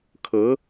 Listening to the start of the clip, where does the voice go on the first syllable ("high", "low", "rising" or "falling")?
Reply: rising